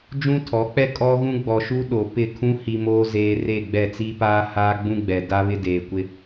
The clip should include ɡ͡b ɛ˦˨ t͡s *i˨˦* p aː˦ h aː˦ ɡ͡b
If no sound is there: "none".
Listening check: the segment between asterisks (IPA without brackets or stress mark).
i˦